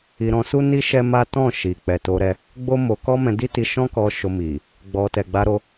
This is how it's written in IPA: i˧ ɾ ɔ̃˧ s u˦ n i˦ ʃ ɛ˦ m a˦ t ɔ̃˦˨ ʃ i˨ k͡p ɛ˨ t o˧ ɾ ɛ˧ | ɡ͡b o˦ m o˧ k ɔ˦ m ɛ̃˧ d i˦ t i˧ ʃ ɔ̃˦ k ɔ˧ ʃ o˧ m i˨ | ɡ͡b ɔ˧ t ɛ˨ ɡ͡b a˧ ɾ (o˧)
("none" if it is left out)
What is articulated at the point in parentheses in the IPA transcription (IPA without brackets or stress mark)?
o˧